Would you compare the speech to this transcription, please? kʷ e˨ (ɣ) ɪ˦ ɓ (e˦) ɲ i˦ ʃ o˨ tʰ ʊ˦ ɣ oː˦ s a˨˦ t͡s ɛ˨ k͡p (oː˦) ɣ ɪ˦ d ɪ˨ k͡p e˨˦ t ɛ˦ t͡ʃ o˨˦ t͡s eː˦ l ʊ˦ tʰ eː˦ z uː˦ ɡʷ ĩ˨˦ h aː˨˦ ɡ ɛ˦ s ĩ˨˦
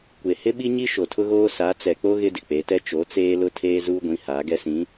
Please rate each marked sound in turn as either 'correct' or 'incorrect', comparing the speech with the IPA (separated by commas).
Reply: incorrect, incorrect, incorrect